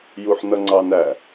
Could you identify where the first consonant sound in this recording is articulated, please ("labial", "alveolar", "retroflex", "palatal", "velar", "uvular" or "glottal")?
palatal